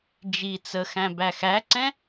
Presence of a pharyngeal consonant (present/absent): absent